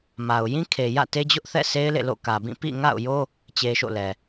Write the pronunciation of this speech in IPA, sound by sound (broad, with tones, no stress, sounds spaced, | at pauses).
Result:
m a˨ ʊ̯ j ĩ˦ kʰ e˨ j ä̰˦˨ t e˦ d͡ʑ ʊ˦ ʔ θ ɛ̰˦˨ sʰ e˦ ɪ̯ l ḛ˦˨ l o̰˦˨ k ä˨ b ĩ˦˨ p ḭ˦˨ ŋ a̰˦˨ ʊ̯ j o˦ | t͡ɕ e˦ ʃ o̰˦˨ l ɛ˨